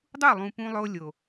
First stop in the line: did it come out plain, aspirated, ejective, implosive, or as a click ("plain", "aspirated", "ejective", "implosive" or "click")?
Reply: plain